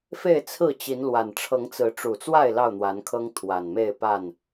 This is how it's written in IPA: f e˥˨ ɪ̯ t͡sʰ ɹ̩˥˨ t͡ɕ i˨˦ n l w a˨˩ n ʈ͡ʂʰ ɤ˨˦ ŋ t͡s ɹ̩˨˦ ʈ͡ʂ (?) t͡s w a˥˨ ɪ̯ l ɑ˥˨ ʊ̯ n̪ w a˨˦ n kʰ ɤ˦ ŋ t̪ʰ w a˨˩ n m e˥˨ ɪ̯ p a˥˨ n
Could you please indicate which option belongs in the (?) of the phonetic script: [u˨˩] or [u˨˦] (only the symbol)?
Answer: u˨˩